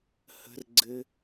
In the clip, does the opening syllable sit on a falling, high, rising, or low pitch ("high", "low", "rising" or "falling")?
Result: high